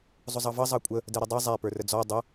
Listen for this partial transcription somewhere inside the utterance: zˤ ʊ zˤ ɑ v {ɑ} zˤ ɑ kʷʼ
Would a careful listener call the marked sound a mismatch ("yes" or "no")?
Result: yes